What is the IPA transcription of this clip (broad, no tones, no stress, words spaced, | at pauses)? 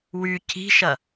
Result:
wy ci̤ʃɐ